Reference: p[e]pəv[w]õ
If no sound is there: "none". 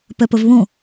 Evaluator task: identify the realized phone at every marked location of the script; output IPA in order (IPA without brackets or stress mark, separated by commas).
ɛ, β